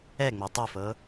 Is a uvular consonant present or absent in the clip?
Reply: absent